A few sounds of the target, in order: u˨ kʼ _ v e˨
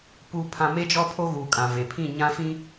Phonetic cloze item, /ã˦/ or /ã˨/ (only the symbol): ã˨